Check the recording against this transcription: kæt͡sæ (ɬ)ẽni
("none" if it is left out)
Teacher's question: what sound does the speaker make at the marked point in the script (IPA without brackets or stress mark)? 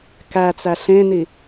ɬ